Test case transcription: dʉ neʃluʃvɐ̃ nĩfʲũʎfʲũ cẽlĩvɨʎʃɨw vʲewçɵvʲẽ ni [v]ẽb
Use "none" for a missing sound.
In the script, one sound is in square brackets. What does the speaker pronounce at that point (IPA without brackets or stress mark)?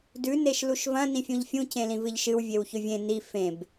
f